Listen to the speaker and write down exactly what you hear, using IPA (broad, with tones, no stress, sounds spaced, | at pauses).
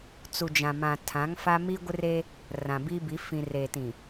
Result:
t͡s u˨ d͡ʒ ã˨ m ã˨ tʰ ã˨˦ ŋ f a˦ m i˦ ɡʷ ɪ˦ r e˦ | r ã˨ b i˦ b i˨˦ f ĩ˨ r e˨ t ĩ˨